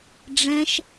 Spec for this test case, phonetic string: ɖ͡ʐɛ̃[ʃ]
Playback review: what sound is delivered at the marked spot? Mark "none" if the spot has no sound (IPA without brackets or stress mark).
ʃ